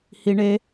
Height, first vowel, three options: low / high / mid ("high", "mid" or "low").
high